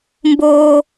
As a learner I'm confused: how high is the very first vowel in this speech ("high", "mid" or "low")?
mid